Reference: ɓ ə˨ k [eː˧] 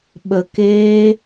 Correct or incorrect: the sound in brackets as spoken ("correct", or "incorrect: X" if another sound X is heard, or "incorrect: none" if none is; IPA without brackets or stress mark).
correct